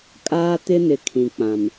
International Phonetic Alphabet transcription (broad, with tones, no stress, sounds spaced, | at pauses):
kʼ aː˦ t ɪ˦ n ɪ˨ kʰ ĩ˨ k͡p ã˨ m